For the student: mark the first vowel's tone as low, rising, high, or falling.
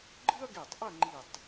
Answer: high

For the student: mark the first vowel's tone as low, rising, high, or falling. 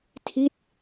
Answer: falling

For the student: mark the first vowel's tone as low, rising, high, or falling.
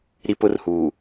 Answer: high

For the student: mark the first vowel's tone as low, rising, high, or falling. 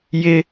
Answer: high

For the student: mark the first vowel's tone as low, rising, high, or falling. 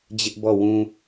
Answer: high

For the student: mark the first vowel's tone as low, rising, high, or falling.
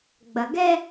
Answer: low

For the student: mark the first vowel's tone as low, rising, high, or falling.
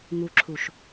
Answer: low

